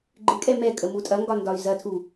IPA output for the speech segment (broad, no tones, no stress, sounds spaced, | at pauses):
ɡ͡ǃ ɪ kʼ ɛ m ɛ kʼ ə m u tʼ ɐ ŋ ɡ ɒ n d ɒ y̯ z ɐ tʰ u